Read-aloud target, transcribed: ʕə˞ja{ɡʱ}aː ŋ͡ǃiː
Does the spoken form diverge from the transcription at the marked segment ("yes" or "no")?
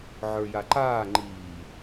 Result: yes